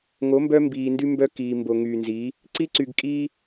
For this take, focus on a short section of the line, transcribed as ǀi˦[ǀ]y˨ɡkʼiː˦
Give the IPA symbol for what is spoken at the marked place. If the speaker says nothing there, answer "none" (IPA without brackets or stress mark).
ǀ